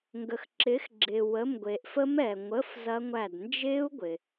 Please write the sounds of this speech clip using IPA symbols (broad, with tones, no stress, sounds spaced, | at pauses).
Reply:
ŋ ɡ ə˨ x ǁ ɪː˨˥ x ɡ͡ǁ ɪː˨ w ə˧˥˧ m ɡʷ e˨ ʔ f ə˦˥ m ɛː˨ ŋʷ ə˧˥˧ f z ɐ˦˥ ŋʷ æ˦˨ d n d͡ʒ ɪː˦˥ u̯ ɡʷ ɪ˨